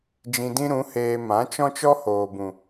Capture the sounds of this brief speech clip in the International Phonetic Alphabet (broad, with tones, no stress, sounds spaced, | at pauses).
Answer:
d͡ʒ ĩ˧ d ĩ˦ ɾ ũ˨˦ h eː˧ m ã˨˦ t͡ʃ ɔ̃˦ t͡ʃ ɔ˦ h oː˨ b ũ˨